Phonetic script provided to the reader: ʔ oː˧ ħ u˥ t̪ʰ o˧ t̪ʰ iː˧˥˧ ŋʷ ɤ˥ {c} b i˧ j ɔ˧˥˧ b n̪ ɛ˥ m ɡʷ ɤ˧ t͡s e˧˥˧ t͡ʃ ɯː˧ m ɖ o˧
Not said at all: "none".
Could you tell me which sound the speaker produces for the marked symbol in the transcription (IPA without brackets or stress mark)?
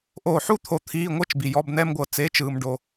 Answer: t͡ʃ